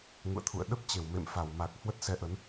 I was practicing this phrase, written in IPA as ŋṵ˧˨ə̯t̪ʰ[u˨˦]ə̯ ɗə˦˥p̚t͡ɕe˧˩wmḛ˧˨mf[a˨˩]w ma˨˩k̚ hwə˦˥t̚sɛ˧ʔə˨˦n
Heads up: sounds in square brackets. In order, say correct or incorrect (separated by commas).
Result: incorrect, incorrect